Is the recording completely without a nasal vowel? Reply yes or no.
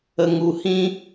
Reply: no